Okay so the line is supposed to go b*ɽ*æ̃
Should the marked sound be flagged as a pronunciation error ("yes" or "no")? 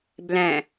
yes